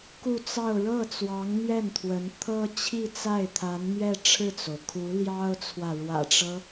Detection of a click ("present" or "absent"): absent